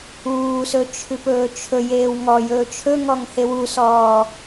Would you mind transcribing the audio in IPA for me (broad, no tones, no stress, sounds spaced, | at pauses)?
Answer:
uː s ɵ t͡ʃʰ ʉ p ɵː t͡ʃʰ ɵ j eː w ŋ ɔ j ɵː t͡ʃʰ ɵ ŋ ɔ ŋ h e w u s ɔː